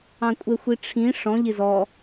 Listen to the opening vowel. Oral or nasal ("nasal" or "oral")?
nasal